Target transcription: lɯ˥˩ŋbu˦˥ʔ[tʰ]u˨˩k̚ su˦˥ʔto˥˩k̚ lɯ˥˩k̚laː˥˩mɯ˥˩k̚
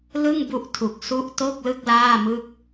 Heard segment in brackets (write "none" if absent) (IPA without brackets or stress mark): tʰ